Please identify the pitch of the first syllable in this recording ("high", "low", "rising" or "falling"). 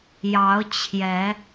rising